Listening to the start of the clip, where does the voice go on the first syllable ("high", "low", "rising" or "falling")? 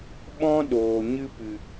high